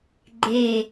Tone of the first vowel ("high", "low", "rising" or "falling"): falling